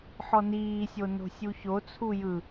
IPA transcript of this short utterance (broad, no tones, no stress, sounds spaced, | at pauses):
ħ ɔ n iː sʲ o n o̤ sʲ u ç o t͡sʰ u j ɯ